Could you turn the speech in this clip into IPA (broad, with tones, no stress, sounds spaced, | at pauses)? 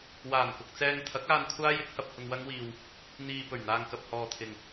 w aː˨˩ n k ʊ˨ k̚ t͡s ɛː˧ ŋ t̪ʰ ɐ˨˥ k̚ aː˧ n kʷʰ aː˥ j ɪ˨˥ k̚ h ɐ˧ p̚ h ʊ˧ ŋ w ɐ˥ ŋ w iː˧ w | n̪ iː˨ p ɵ˨˩ ɥ n̪ aː˨ ŋ k ɐ˨ p̚ h ɔː˨ t̪ʰ ɪ˨ ŋ